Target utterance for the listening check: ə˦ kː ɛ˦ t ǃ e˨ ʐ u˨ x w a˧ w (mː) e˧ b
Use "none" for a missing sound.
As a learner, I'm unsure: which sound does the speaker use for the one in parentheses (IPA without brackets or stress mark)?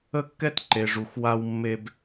mː